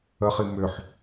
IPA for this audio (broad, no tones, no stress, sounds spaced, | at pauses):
ə χ i m ʏ ħ